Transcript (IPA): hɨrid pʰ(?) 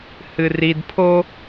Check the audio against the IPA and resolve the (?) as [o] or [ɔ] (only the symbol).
o